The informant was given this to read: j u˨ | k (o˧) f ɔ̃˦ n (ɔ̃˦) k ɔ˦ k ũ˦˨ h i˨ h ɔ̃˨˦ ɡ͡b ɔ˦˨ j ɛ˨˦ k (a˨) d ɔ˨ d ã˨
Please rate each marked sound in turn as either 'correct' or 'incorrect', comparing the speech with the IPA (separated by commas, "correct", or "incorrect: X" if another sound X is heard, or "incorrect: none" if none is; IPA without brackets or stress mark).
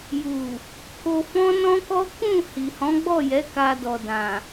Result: correct, correct, incorrect: a˧